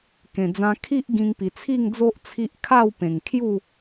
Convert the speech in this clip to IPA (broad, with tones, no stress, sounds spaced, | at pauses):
k ẽ˨˩ d͡z ã˧ kʰ i˦ ʔ ɡ ĩ˧ ŋ p i˨˩ t͡sʰ i˥˧ ŋ d͡z o˦ ʔ t͡sʰ i˦ ʔ kʰ a˥˧ w p ẽ˨˩ ŋ kʰ j u˥˧